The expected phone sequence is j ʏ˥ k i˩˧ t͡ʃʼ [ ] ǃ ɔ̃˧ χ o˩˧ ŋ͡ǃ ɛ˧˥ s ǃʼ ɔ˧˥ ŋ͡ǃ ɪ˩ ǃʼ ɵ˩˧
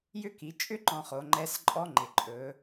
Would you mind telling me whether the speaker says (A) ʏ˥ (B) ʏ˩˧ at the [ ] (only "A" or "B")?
A